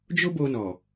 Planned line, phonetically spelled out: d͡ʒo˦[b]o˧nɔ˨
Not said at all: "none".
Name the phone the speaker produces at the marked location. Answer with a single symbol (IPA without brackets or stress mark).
b